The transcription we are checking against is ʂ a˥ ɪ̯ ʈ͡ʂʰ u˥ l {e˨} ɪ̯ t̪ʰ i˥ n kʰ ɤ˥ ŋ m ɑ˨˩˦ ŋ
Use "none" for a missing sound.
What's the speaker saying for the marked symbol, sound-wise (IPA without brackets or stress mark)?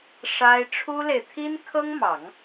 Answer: e˨